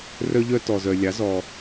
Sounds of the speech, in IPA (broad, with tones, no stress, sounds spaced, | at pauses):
r œ˦ ʎ œ˦ t ɔ˨ z œ˨ lʲ ɑ˨˦ z ɔ˨